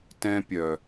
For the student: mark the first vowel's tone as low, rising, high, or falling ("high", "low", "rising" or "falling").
high